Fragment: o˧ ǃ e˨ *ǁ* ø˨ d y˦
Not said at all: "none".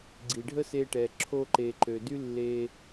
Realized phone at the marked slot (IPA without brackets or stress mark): ǃ